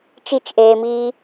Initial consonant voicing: voiceless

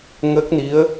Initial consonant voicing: voiced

